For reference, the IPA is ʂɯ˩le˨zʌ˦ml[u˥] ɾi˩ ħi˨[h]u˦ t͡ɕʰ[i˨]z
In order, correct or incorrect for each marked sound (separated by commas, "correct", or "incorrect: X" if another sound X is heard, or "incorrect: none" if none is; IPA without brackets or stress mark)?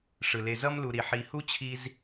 incorrect: u˨, correct, incorrect: i˦